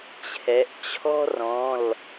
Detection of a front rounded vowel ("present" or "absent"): absent